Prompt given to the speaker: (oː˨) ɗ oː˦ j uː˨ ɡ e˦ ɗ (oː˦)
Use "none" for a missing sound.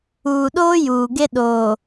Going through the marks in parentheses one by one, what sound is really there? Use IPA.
uː˨, oː˨

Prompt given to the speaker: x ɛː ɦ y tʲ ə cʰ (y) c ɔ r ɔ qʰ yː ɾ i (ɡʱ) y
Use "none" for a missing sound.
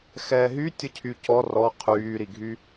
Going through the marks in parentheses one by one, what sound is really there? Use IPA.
y, ɡʱ

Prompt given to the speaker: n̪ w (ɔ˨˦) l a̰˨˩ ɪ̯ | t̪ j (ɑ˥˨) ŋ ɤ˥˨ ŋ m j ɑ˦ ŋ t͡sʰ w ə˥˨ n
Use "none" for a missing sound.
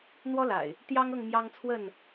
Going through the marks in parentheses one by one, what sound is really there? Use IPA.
ɔ˦, ɑ˦

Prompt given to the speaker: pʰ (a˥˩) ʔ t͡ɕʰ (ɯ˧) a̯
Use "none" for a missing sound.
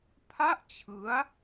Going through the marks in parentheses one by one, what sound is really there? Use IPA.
a˥˩, ɯ˦˥

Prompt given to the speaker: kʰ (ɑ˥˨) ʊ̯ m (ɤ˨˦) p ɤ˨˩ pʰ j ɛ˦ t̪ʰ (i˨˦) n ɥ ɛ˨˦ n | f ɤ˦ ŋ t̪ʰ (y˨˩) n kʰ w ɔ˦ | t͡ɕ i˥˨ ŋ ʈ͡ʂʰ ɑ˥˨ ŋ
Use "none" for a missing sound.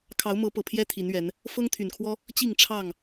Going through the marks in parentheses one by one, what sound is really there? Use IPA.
ɑ˨˦, ɤ˨˦, i˨˦, y˨˩

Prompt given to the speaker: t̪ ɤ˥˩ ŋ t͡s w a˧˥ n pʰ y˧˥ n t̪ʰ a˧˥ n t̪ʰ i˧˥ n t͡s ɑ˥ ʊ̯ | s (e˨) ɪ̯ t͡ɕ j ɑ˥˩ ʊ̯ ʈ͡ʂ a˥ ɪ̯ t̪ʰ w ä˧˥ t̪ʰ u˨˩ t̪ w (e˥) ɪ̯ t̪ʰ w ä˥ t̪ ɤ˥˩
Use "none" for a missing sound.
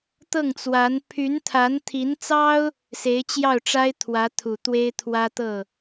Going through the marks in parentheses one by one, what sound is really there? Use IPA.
e˧˥, e˥

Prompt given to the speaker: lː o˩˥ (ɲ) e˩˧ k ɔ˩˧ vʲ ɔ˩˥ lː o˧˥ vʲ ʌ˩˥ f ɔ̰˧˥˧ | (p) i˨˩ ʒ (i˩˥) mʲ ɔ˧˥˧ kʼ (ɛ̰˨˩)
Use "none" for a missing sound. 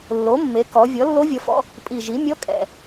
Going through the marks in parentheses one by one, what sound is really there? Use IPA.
mː, pʼ, i˩˥, ɛ̰˨˩

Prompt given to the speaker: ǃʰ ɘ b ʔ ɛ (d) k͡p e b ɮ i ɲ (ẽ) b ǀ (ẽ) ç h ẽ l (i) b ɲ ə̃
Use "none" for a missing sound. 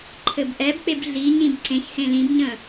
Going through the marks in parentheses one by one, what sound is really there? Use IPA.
b, ĩ, ẽ, ĩ

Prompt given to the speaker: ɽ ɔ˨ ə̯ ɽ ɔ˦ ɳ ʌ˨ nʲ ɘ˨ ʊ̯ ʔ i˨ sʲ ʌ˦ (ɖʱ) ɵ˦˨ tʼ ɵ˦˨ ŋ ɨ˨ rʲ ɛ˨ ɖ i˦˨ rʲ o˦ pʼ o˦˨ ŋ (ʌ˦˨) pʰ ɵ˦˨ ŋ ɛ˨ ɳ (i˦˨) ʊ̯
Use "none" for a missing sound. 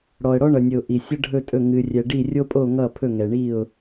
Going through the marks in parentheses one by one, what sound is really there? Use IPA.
ɖʱ, ʌ˦˨, i˦˨

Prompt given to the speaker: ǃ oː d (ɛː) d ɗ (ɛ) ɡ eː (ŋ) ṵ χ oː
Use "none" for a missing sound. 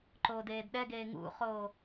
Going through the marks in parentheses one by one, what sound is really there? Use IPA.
eː, ɛ, ŋ

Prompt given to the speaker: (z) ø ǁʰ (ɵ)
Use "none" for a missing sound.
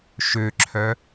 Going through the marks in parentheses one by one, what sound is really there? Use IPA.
ʃ, œ

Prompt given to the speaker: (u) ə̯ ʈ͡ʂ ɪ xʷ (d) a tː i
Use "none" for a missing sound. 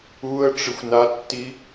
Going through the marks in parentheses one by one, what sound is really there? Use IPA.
u, n

